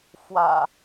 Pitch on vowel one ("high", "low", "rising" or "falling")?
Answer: low